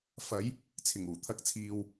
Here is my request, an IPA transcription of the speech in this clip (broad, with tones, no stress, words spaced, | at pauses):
fɐ˨˧j | t͡sʰɪ˨˩ŋuː˨˩ t̪ʰɐ˨˥k̚t͡sʰiː˨w